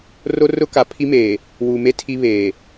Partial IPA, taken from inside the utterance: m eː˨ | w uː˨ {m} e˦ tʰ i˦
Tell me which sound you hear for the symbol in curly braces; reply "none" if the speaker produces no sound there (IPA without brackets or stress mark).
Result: m